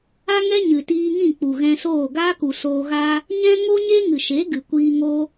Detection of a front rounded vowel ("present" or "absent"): absent